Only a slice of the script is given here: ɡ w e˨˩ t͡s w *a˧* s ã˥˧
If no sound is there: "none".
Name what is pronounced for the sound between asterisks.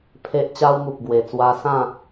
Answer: a˧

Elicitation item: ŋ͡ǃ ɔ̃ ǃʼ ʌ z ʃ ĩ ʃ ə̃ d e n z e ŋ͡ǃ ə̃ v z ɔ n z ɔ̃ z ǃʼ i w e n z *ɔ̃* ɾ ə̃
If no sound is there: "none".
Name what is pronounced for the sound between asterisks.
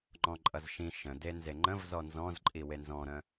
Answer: ɔ̃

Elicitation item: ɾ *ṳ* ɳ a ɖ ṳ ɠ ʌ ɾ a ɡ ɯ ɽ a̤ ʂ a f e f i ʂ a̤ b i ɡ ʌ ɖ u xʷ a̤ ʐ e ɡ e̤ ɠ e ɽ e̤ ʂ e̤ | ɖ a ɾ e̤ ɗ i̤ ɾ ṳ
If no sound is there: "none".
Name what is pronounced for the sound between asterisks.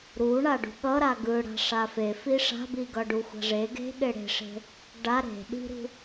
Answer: u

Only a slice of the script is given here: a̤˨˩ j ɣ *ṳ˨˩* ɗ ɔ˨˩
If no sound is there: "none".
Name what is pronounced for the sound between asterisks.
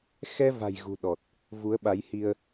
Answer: ṳ˨˩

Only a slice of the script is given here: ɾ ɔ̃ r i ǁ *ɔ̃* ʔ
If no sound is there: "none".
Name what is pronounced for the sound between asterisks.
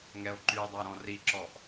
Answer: ɔ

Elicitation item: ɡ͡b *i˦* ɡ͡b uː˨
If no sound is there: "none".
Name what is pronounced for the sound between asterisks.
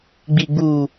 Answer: i˨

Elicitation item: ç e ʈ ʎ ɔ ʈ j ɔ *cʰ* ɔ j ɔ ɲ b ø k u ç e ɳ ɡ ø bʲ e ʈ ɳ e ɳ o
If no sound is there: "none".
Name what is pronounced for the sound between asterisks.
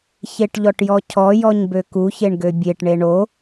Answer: cʰ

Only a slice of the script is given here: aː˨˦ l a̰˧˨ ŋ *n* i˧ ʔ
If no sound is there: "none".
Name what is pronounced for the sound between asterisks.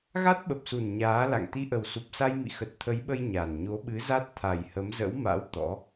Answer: t̪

